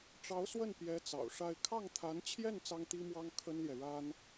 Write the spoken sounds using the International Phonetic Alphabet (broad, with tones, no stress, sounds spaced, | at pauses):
ʈ͡ʂ ɑ˧˥ ʊ̯ s w ə˥˩ n p j ɛ˧˥ t͡s ɑ̰˨˩ ʊ̯ ʂ a˥˧ ɪ̯ kʰ ɑ˥˩ ŋ t̪ʰ a˧˥ n t͡ɕʰ j ɛ˥˩ n t͡s ɑ˥ ŋ t̪ i˥ m w ɑ˥ ŋ kʰ ə˥ n l j ɛ˨ ɻ a˥ n